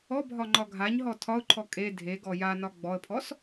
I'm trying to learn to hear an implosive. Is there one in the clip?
no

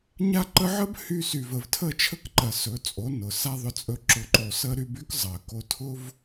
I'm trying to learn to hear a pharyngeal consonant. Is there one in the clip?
yes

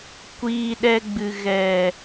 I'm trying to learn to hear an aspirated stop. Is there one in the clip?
no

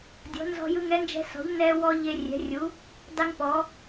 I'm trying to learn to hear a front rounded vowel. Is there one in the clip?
no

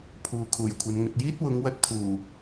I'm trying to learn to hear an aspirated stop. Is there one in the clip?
yes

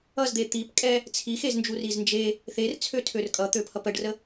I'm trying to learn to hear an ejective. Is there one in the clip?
yes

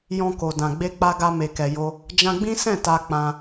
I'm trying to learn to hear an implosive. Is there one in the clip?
no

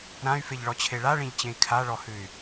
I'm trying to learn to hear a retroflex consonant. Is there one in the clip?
yes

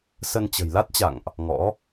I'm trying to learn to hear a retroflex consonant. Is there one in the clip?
no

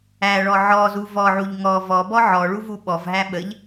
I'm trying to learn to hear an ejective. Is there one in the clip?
no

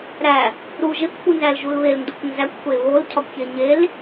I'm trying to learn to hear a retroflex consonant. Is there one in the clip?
no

